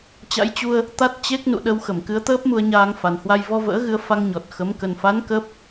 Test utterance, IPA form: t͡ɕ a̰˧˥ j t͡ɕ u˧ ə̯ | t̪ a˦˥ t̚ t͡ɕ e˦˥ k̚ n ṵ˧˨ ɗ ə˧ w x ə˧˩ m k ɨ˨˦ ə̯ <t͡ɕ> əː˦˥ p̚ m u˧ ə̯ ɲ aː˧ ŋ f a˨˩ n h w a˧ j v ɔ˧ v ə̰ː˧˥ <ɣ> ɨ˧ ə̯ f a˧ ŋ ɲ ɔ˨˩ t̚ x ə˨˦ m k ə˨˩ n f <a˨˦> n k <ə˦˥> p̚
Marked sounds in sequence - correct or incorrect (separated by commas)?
incorrect, correct, correct, incorrect